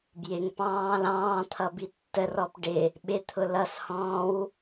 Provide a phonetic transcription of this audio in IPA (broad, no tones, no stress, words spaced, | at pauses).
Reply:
bjɪŋ pɑ̃ːlɑ̃ːt̪ʰʌ bitːərɔp ɖɪ | ɓɪt̪ʰʊ lʌshɔ̃ːw